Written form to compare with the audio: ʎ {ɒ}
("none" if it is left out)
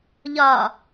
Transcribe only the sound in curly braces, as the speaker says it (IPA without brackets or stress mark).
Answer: ɒ